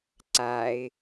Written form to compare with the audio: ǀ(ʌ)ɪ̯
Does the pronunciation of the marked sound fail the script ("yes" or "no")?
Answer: yes